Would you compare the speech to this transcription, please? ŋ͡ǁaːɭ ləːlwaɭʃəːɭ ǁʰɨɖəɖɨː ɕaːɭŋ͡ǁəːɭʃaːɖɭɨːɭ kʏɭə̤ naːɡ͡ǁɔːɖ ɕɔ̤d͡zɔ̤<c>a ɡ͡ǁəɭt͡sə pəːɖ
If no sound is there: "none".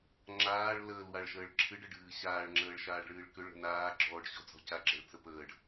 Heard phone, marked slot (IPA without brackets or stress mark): c